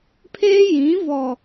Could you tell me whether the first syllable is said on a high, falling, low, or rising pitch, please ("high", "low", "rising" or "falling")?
high